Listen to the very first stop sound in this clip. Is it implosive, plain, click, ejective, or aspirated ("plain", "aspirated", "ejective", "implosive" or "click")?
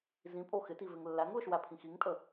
ejective